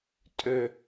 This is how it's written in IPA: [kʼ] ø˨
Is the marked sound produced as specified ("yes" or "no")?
no